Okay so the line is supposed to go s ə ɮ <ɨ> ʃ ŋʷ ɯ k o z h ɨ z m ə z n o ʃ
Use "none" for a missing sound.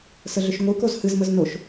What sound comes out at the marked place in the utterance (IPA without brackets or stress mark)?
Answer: ʏ